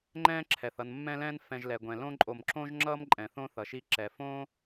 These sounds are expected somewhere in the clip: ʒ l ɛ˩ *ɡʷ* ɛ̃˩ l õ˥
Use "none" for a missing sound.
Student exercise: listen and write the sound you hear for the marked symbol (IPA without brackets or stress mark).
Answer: ɡʷ